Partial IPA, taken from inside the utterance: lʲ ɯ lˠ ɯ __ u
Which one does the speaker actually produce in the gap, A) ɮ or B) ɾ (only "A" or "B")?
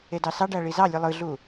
A